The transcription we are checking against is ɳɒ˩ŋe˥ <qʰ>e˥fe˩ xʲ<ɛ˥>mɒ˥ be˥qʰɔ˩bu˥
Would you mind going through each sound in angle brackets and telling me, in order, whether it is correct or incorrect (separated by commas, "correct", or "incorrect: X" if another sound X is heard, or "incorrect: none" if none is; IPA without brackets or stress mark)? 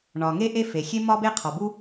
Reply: incorrect: ʔ, incorrect: e˥